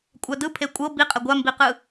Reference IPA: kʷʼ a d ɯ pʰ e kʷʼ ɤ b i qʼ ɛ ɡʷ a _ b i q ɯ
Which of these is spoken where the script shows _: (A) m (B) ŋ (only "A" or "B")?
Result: A